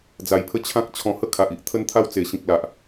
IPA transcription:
d͡z a˧ j pʰ ə˦ t͡ɕʰ ã˦ k̚ t͡ɕʰ ɔ̃˧ h ə˦ kʰ a˨ ʔ i˨ ʔ t̪ʰ ə˦ n t̪ʰ a˦ w t͡s e˨˩ ɕ ĩ˨ k̚ l a˨ ʔ

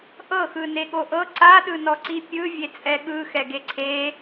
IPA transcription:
ʔ ɤ x ɯ n e ɠ o ʔ ɤ ǀ a ɗ ɯ n ɔ ǀ i pʲ ɯ vʲ e t͡sʼ ɛ ɠ ɯ x ɛ ɡ e ǀʰ e

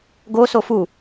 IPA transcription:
ɡ o s o f u

